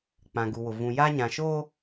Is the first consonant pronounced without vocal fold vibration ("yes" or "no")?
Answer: yes